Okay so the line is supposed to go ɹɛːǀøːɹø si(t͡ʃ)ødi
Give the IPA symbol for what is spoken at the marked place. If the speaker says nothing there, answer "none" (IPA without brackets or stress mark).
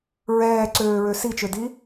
t͡ʃ